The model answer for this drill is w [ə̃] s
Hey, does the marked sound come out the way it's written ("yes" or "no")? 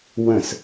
yes